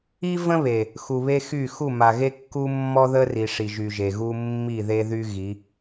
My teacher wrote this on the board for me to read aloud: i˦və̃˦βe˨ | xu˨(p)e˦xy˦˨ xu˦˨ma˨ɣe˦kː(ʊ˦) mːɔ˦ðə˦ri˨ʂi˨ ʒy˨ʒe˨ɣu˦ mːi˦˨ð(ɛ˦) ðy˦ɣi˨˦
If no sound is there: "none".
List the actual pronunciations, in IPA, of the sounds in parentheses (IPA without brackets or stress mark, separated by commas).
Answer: β, u˦, e˦